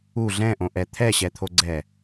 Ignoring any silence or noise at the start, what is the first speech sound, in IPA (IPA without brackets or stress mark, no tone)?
u